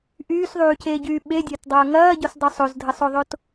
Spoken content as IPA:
ʔ yː s ðˤ yː c eː ɟ yː ɓ e dʲ ɐː t dˤ ɐː ŋ ɐː ɟ o s dˤ o sˤ o z dʱ ə sˤ o ðˤ o t

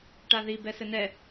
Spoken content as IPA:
ʈ a ð i b ɛ s ɘ n ɛ

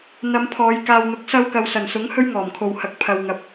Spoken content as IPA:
n̪ ɐ˨˧ m pʰ ɔː˨˧ j k aː˨ w n̪ ʊ˨˥ k̚ s ɐ˧ w k ɐ˨ w s ɐ˨˩ n s ʊ˨˥ ŋ h ɵ˥ ɥ ŋ ɔː˨˩ m kʰ o˨ w h ɐ˨ k̚ pʰ ɐ˨ w ŋ ɐ˨˥ p̚

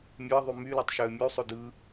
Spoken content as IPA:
mʲ ø ə̯ ðˤ y m y l o tˤ ʃ ø ə̯ mʲ u sˤ o d ɯ

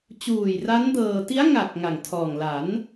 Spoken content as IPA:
t͡ɕ uː˨˩ j r a˦˥ n d ɤː˧ t i˦˥ a̯ ŋ a˨˩ k̚ ŋ a˨˩ ŋ tʰ ɔː˨˩ ŋ l a˩˦ n

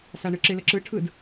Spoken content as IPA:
s a ɳ ɯ ǁ ɪ l ə ǁ ɯ ʈʰ ɯ d

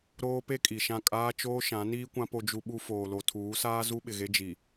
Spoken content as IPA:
ɾ oː˦ p e˦ kʼ i˨ ʃ ã˦˨ kʼ aː˦ t͡ʃ oː˦ ʃ ã˨˦ n iː˦ kʷ ã˦ p o˦ d͡ʒ u˦ ɓ u˦ f oː˨ l o˨ tʰ uː˨˦ s aː˦ z u˦ ɓ ɪ˨ ɣ e˦ d͡ʒ i˨

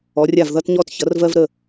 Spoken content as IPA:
ɔ˩˧ rʲ a˧˩ v ð ʌ˧ t ɲ ɔ˧ t ç ʌ˩˧ r v ɜ˧ v ɾ ə˧˩

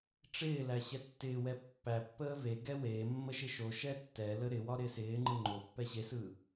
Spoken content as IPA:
ʈ͡ʂ ɪː l æ ɕ ɛ tː ɪː w ɛ pː æ pː əː v e ɡ ɛ w e mː ə ʃ ɪ ʃ o ʃ ɛ tː ɛ l ə ɾ ɪ w ɒ ɾ ɪː s ɪː ŋ͡ǃ ɯ ŋ͡ǃ o pː ɛ ɕ e s ɯː

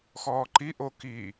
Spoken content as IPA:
x ɔː ǃ i ʔ o k i

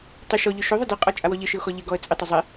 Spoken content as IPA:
tˤ ɪ ʃ ɔ ʎ ʊ ʃ o ðˤ ɪ d i qʼ ɔ t͡ʃʼ a w ɔ ʎ ɪ ʃ ɪ ʊ̯ x ɔ ʎ ɪ ɡ ɔ ə̯ t͡sʼ ɪ tˤ ɪ zˤ ɪ

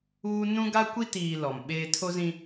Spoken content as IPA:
uː˦ n ũ˦ ɡ a˦ kʷ i˦ t iː˨ l ɔ˨ m ɓ eː˦ tʰ o˦ z ĩ˦

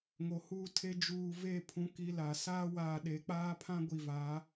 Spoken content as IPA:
ŋ o˨ h uː˦ tʰ e˦ d͡ʒ uː˨ v e˦˨ pʰ ũ˦ k i˦ l a˨ s aː˦ w aː˨ ɗ e˨˦ k͡p aː˦ pʰ ã˦ ɡʷ i˨ v a˨˦

